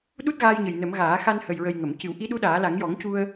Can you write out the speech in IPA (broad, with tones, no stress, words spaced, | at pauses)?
ɗu˦˥t̚ɣaː˧jɲə˨˩j nə˨˩˦mɣaː˨˩˦ xa˧nhə˨˩jɹə˨˩j ŋə˨˩˨m cɨ˨˩˦w ʔi˧˥ɗu˧˥ɗaː˨˩˦la˨˩˦ŋ jɔ˨˩˦ŋcu˧ə̯